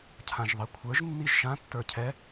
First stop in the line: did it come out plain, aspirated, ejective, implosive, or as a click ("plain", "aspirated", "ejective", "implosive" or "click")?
aspirated